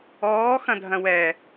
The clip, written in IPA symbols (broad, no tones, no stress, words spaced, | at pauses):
ɔː xɐ̃dʱɐ̃wɛ